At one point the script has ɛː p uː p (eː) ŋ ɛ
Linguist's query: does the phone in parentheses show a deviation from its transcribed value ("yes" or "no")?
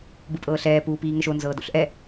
yes